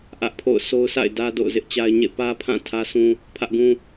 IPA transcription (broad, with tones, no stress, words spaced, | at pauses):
ʔä˦ʔpʰo̰˦˨ʊ̯ so˦ʊ̯sa̰˦˨ɪ̯ dä˦ do̰˦˨ʊ̯zɪ˦ʔt͡ɕa˦ɪ̯ɲḛ˦˨ pä˦pʰã˦˨ tʰä˦sʰũ˦ | pʰä˦ʔɡũ˦